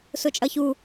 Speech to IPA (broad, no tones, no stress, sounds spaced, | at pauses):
s ʊ t͡ʃʼ ʌ ç u